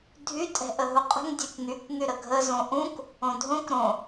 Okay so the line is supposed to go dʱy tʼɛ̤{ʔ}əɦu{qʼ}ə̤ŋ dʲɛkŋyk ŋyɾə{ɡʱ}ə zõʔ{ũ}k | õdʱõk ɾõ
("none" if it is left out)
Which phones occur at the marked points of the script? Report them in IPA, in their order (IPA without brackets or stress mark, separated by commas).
ʔ, qʼ, ɡʱ, ũ